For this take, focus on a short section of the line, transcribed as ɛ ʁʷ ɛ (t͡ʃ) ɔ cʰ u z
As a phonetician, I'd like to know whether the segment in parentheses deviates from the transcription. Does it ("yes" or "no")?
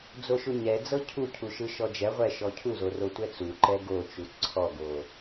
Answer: yes